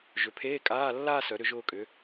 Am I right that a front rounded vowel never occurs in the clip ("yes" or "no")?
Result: no